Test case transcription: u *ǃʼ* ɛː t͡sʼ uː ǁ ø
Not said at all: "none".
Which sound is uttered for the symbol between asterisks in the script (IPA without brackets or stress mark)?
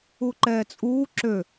ǃ